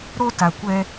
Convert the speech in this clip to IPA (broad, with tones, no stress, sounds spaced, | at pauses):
ɾ o˦ t a˨ kʷ ɛ˦